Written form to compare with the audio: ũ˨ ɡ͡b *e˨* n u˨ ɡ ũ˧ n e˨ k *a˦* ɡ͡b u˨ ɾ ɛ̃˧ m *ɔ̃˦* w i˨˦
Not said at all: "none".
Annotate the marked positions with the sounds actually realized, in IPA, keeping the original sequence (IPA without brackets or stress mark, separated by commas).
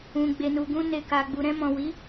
e˨, a˨, ɔ̃˨